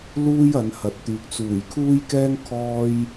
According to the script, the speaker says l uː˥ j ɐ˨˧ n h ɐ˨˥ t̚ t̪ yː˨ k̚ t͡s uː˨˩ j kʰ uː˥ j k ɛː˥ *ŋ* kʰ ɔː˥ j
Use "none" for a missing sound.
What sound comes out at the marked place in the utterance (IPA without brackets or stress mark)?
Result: ŋ